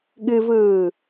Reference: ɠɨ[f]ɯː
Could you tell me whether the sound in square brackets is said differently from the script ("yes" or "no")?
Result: yes